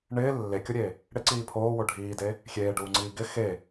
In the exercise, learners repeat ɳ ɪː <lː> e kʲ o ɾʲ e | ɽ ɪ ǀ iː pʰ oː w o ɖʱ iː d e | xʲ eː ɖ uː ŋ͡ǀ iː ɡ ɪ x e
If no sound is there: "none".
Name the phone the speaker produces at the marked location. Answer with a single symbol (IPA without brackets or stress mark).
lː